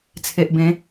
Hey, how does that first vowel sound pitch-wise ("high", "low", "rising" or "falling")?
low